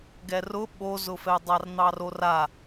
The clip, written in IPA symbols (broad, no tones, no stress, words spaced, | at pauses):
ɡɛrʊ ɓozʊfɛdˤar n̪ɑrora